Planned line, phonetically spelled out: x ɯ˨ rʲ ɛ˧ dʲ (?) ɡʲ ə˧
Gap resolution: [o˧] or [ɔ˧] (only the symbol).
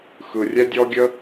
ɔ˧